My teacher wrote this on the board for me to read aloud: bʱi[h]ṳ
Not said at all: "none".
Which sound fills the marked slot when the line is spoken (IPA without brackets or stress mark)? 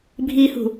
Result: h